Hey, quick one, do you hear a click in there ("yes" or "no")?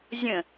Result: no